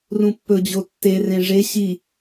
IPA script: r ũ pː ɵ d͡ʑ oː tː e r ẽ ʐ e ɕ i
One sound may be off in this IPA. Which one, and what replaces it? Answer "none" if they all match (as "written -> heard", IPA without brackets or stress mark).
oː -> o